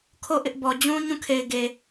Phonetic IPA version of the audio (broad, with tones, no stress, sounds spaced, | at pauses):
kʰ o˦˨ ʔ ɪ˦ ʔ b ɔ˨ d͡ʑ ũ˦ ɲ ũ˦˨ kʰ e˨ ɪ̯ ɡ e˨